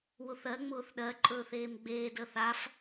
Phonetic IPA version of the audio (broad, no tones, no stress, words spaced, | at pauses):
wʊθɜ ŋ͡mʊːθɗɜ ǃʼɵːθeːmɡ͡beːd əθaf